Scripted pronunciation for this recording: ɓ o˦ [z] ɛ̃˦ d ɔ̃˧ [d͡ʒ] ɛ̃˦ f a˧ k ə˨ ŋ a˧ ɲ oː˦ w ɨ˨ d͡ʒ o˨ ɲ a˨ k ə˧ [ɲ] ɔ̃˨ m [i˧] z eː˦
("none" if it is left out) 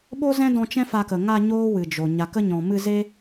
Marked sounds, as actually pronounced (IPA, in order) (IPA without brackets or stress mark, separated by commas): z, t͡ʃ, ɲ, ɨ˧